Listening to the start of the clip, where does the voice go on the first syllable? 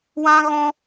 high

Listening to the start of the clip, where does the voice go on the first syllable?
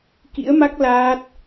rising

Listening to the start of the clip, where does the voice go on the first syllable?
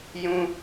high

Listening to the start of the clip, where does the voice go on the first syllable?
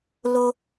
low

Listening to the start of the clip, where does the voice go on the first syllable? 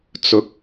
rising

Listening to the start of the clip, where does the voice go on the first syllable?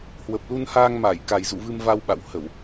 low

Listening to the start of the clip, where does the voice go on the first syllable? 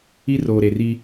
high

